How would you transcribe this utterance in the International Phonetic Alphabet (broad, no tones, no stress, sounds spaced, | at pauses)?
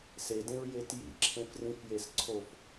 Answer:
s e d ẽ ɹ j e t j ḭ ǁʰ ẽ f r ĩ f j e s ǀʰ o f